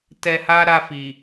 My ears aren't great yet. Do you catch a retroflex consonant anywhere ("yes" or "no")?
no